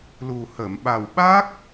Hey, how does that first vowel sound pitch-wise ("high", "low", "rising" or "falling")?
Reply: low